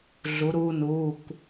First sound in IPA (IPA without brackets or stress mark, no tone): ɮ